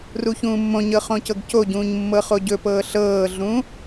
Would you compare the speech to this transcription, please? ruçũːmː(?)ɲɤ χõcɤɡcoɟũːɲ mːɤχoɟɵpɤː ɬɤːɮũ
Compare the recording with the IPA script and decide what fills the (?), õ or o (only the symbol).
õ